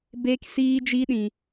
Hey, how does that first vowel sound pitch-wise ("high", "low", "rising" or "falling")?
high